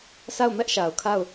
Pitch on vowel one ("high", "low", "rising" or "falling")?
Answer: falling